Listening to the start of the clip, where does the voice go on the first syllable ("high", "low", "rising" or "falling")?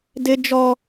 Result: high